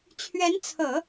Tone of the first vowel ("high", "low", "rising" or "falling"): rising